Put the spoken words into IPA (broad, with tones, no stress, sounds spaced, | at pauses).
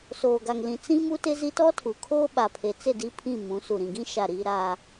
s oː˨ ɡ a˨ ŋ l ĩ˨ t͡s ĩ˦ m u˦ t ɪ˦ z i˦ t ɔ˦ tʰ u˨ kʰ oː˦ ɓ a˨ pʰ e˨ t͡s ɪ˦˨ d i˦ pʰ ĩ˦˨ m ũ˨˦ s u˨ ɾ ĩ˨ ɡ ĩ˦ ʃ a˦˨ ɾ i˦ ɾ a˦